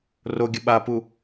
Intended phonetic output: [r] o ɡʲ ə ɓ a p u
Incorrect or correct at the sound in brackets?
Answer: correct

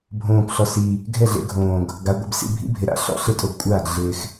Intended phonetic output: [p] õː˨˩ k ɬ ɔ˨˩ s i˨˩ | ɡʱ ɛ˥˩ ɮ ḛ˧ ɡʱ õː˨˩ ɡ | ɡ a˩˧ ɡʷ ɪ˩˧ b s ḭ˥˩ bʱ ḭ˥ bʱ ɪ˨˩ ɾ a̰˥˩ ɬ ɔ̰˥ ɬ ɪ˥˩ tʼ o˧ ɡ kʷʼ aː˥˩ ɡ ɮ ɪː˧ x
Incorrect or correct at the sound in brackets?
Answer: incorrect: bʱ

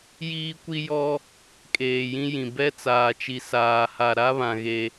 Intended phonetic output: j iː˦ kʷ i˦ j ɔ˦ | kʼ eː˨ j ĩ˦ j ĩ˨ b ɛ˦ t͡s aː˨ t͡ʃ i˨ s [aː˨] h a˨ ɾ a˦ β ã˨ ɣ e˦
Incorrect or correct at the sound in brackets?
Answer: correct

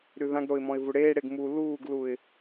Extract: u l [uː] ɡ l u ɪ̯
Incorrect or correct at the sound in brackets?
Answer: correct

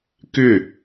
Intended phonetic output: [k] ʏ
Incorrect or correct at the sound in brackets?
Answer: correct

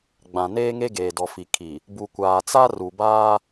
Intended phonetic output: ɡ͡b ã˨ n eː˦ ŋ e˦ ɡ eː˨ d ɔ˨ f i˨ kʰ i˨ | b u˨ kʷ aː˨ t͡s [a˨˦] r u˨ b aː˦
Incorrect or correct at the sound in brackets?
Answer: incorrect: a˦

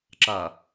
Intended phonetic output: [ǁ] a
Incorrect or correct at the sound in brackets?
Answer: correct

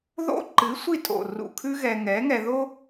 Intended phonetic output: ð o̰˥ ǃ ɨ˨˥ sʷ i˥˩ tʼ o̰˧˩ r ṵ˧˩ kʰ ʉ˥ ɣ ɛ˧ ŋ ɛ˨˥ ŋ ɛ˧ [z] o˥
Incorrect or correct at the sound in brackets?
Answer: incorrect: ð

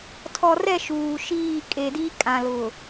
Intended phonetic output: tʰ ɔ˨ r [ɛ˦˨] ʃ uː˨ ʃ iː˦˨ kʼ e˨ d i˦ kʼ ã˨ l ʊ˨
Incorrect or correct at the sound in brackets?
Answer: correct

